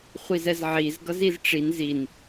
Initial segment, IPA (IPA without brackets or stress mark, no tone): χʷ